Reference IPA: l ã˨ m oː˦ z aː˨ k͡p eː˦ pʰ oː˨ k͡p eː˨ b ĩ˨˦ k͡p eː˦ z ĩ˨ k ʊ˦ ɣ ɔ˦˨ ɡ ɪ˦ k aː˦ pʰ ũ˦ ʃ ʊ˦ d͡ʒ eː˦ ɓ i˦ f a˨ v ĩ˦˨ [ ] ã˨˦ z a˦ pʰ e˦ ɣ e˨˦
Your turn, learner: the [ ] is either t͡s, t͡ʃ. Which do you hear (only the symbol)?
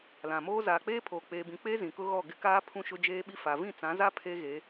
t͡s